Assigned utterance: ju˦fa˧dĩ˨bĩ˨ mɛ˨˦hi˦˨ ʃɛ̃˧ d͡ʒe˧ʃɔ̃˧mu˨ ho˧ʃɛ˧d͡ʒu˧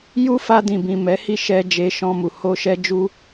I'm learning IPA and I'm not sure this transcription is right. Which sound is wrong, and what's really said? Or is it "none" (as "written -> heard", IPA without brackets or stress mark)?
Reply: ɛ̃˧ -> ɛ˧